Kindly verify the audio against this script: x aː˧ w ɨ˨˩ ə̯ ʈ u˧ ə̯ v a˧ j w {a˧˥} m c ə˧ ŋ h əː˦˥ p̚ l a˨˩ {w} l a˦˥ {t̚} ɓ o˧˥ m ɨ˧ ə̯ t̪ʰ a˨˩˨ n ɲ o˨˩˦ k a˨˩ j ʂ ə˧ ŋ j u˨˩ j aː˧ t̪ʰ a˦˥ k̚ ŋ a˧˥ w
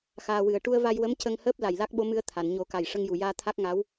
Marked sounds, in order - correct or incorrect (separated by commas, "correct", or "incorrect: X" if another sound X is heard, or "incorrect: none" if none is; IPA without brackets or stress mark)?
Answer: incorrect: ə˧˥, incorrect: j, incorrect: k̚